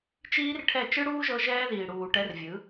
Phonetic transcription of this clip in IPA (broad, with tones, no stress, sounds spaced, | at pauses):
t͡ʃ iː˦ r ʈʰ ɛ˦˨ t͡ʃ ɯ˦ ɽ uː˦ ʒ ɤ˧ ʒ ɛː˦ ð iː˨ ɽ uː˨ ʈ ɛ˧ r vʲ ɯ˨˦